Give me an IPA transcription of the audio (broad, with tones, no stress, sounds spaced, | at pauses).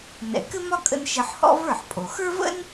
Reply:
n ɛ̰˩ k ɘ˥ m ɒ˥ kʼ ə̰˧ n ʃ ɘ˧ ħ h ɔ̰˥ v ə˞˥˩ ħ pʼ o˩ x ə˞˥ v ə̰˥ n